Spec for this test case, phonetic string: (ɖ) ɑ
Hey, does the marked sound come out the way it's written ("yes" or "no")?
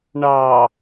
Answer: no